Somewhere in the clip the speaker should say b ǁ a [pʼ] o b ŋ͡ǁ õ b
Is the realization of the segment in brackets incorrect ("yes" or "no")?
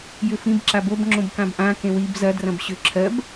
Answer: yes